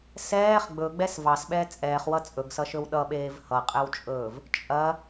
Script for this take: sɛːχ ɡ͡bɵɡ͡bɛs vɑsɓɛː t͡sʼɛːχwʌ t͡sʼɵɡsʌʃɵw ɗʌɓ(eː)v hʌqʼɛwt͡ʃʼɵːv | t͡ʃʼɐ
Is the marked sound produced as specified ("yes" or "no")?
yes